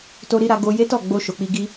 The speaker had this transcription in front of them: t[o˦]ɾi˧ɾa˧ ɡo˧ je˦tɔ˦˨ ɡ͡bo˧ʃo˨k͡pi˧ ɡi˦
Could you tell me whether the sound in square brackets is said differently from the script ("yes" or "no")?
yes